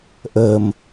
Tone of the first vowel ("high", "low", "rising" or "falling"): low